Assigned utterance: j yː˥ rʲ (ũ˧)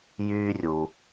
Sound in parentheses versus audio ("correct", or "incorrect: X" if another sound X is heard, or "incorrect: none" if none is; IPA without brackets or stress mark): incorrect: u˧